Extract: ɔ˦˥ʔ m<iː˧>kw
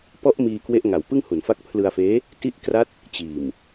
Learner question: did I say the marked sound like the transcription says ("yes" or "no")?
yes